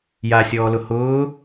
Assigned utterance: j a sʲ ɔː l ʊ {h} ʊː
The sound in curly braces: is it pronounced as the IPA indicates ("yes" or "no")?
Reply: yes